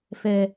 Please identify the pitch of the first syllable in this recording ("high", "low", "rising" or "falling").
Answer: low